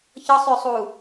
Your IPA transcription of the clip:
ç ɤ sˤ ʏː sˤ uː

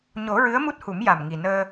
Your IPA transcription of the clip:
ɲ o˨˩˦ ɹ ɨ˧˥ ə̯ m u˦˥ t̚ h u˨˩˦ m j a˨˩ m ŋ i˨˩ n əː˧

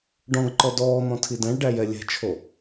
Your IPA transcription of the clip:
ɖ ɔ̃ ɡ ǃ ɔ d ɔː n̪ ɔ̃ tʰ i d æ̃ ɭ ɖ æ j ɛ lʲ ɛ̤ t͡ʃʰ o

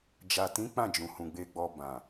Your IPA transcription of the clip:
d͡ʒ a˨ t ĩ˨˦ k͡p ã˦˨ d͡ʒ ũ˨ h ũ˨ ɡ͡b e˧ ɡ͡b ɔ˧ b ã˨

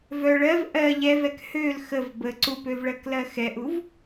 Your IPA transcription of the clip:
v œ ɭ ɜ v ʔ ɜ ʎ ɛ v ɛ k h ø l x ə v b ə ǀ u p ø v ɭ ɜ k l ɜ x ɛ ʔ u v

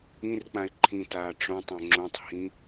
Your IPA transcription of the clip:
ĩ r k͡p ã ɪ̯ ǃʰ ĩ t aː ʈ͡ʂ õ tˤ õ ŋ͡ǁ õ tˤ h ĩ

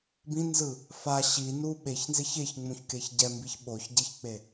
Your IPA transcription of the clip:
b ĩ n z ɯ | f a ɕ i n u ɓ e ç n z e ç e ç ŋ͡m ũ ç k e ç ɟ ɛ m b i ç ɓ o ç ɟ e ç k͡p e

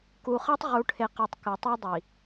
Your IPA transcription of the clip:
k u˨ χ ɐ˦ tˤ ʁ u˨ ʈʰ e˨ q a˨ tˤ k ɨ˨ tˤ ʉ˦ dˤ i˨

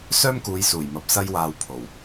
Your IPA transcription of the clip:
s œː˥ m k uː˨˧ j s uː˨˩ j m ɐ˨ p̚ s ɐ˧ j w aː˨ w pʰ o˨˩ w

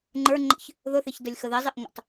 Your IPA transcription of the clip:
ŋ͡ǃ ə˞ ŋ͡ǃ ə̰ ç | ð ʊ θ ɪ ç d ə lʲ x ə ð ɪ zˤ ɪ ʔ ŋʷ ə̰ tˤ

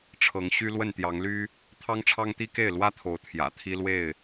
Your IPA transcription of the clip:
ʈ͡ʂʰ ɤ˨˦ ŋ ɕ y˦ l w ə˥˨ n t̪ j ɑ˨˦ ŋ l y˦ | t̪ʰ ɑ˦ ŋ ʈ͡ʂʰ ɑ˦ ŋ t̪ i˦ k e˥˨ ɪ̯ l w ä˦ t̪ʰ o˨˦ ʊ̯ t̪ʰ j ä̰˨˩ t̪ʰ i˦ l w e˥˨ ɪ̯

